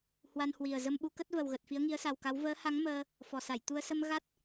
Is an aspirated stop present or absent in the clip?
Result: absent